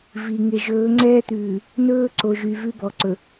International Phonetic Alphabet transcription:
vi˨ ŋe˨ʒɵː˨˦ŋ͡ǀɛː˦t̪ʉː˨ | nɵː˦ǀo˨ʒy˨ vʉ˦bɔ˨ǀɵ˨

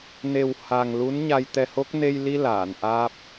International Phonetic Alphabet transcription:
ne˨˩w ha˨˩ŋlu˧˥n ɲa˧jt̪ɛ˧ho˦˥k̚ ne˧jli˧ laː˨˩˨nʔaː˦˥p̚

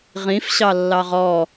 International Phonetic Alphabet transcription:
ʁĩf ɕɑlːɑʁɔ

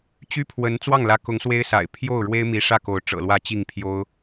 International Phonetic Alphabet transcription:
t͡ɕy˥pʰwə˧˥n t͡swɑ˥˩ŋlä˧˥kʊ˧˥ŋ swe˥ɪ̯sa̰˨˩ɪ̯ pʰjo˥˩ʊ̯ ɻwe˥ɪ̯mi˧˥ʂä˥˩ko˧˥ʊ̯ ʈ͡ʂɤ̰˨˩lwä˥˧ t͡ɕi˥˩ŋpʰjo˥ʊ̯

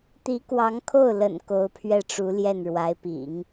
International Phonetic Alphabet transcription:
t̪i˧˥kwɑ˧˥ŋkʰo˥˩ʊ̯lə̰˨˩n ko˧˥ʊ̯pʰɥɛ˥˩ʈ͡ʂu˧˥ ljɛ˥˩nɻwa˧˥ɪ̯pḭ˨˩˦ŋ

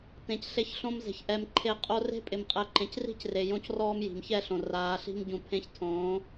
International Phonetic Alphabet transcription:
tẽ˨cɬe˧çɬõ˧mze̤˨ç ʔɛ˧mǃʰe˦˨ qʼo˧re̤˦pʼɪ˨mqʼɛ˨ ǃẽ˨cri̤˦cre˨ jõ˦c rɔː˦mji̤˨mçɛ˦ɬõ˨ raː˨˦ɬi̤˦m ɟũ˨ pʰẽ˦ç tʰõː˨˦

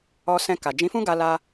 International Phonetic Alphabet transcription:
ɔ˧sɛ̃˧ ka˨ d͡ʒĩ˨˦fũ˦ ɡa˧la˧

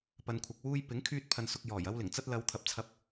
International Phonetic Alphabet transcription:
pɐ˨nkʷʰɐ˨k̚ wuː˧j pɪ˨˥ŋkʰyː˧t̚ pʰɐ˨nsʊ˨k̚ jɔː˨˩jɐ˧wlɪ˨˩ŋt͡sɐ˧t̚ lɐ˨˧wt̪ʰɐ˨˥p̚t͡sʰɐ˧p̚

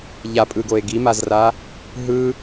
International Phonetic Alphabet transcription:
ʎapʼɯɡoe̯ ɡimazra | ɦɯ

